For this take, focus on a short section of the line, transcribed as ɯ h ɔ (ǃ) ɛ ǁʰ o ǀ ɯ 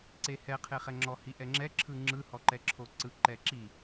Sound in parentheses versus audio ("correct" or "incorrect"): correct